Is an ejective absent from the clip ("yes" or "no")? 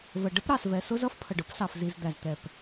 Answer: yes